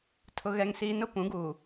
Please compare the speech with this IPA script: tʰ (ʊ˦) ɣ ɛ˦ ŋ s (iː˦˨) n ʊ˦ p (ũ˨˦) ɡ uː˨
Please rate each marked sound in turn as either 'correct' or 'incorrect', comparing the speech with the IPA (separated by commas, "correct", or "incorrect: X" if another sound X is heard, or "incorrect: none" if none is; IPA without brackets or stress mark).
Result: correct, incorrect: iː˦, correct